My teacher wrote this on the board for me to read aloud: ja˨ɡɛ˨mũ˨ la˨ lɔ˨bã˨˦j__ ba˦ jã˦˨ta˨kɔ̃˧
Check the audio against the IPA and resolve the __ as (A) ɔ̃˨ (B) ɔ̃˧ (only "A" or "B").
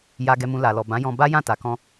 B